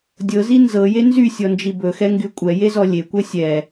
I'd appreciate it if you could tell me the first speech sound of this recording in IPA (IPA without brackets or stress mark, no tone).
dʲ